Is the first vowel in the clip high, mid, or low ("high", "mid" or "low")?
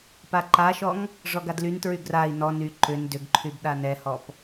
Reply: low